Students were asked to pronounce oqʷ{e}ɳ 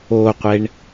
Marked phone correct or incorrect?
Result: correct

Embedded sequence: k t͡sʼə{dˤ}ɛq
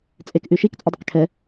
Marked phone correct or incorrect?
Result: correct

